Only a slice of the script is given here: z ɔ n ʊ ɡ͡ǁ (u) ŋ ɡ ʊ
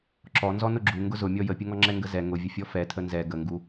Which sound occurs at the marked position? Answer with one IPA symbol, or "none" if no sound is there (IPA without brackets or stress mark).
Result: u